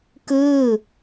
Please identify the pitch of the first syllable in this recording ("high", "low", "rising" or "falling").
falling